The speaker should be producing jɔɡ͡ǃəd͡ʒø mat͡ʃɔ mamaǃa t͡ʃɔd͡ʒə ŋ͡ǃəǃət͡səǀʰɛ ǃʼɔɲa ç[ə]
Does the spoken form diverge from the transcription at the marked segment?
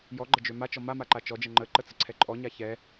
yes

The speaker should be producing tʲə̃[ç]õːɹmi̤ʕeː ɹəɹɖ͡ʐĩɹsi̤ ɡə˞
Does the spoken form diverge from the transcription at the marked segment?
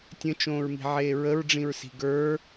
yes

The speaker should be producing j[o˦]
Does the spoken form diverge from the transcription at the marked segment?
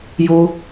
no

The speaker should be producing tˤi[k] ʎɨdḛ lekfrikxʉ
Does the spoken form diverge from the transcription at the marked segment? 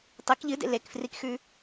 no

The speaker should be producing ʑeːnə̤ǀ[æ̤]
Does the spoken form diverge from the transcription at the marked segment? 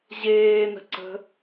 yes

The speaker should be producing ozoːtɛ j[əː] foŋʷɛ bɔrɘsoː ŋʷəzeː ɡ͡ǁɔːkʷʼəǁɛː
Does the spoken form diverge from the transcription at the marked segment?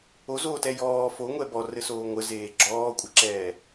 yes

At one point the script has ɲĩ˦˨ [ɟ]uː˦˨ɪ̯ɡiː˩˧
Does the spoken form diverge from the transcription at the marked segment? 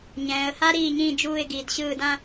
yes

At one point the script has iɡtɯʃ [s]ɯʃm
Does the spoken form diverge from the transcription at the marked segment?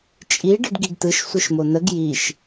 yes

